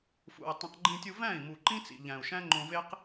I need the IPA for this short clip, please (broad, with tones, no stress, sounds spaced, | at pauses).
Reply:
f ṵ˨ i̯ tˤ ũ˨ q ɡ͡ǃ ĩ˧ tʲ u˧ v æ̃˦˨ i̯ m u˨ ǃ ĩ˦ t͡s ḭ˨ ʎ æ̃˨ u̯ ʃ æ̃˦ ŋ͡ǃ õ˧ v e˦ q